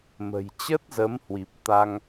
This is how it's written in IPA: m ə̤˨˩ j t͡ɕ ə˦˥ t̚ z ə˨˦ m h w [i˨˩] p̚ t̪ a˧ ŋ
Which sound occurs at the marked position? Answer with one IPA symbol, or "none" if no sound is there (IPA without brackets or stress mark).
i˨˩